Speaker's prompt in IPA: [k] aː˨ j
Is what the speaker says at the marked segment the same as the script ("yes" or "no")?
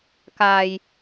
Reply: yes